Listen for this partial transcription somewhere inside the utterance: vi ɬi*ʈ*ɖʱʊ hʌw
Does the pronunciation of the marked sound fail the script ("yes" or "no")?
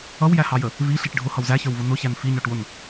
no